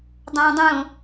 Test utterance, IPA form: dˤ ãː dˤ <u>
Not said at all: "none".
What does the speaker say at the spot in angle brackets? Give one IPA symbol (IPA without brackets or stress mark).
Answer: ũ